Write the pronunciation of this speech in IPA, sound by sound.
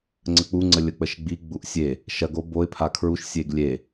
ŋ͡ǀ ə k͡p u ŋ͡ǀ ə lʲ ə k͡p ə ʃ ɡ͡b i ɡ͡b u ʔ sʲ e | ʃ ɐ ɡ o b o ɪ̯ pʰ a kʰ ɹ u ʃ sʲ e ɡ lʲ e

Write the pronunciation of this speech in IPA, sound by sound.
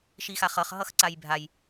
ʃ i x a χ ʌ χ ɦ ʌ x ǀ a j bʱ a j

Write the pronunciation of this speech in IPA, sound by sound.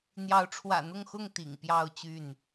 n̪ j ɑ˨˦ ʊ̯ ʈ͡ʂʰ w ä̰˨˩ n̪ ʊ˥˨ ŋ x ʊ˥˨ ŋ t̪ ḭ˨˩ ŋ p j ɑ˥˨ ʊ̯ t͡ɕ y˥˨ n

